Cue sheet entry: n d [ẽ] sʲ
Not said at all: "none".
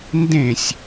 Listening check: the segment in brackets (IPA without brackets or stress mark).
ẽ